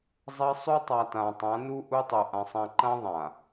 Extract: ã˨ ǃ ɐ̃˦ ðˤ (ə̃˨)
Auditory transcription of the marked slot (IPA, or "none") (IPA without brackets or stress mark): ã˨